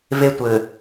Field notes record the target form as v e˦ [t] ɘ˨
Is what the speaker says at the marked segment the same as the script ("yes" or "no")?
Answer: no